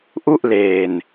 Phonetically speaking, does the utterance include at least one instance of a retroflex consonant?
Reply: no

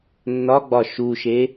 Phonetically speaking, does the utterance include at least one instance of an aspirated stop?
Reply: no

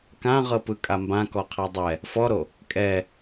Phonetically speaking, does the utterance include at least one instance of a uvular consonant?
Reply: yes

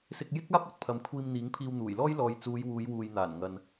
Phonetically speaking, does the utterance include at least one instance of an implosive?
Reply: no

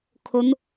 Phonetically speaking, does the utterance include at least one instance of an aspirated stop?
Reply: yes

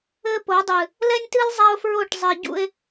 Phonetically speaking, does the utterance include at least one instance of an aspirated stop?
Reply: no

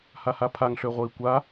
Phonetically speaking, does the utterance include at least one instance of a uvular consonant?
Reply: yes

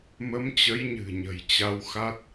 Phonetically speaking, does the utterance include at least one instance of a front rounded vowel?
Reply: no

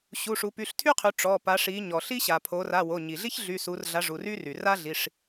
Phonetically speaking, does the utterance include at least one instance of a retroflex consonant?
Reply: yes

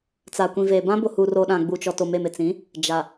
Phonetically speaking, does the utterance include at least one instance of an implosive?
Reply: yes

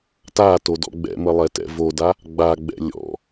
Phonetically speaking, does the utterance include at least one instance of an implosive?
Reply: no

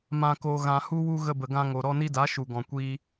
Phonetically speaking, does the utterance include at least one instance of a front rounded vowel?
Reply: no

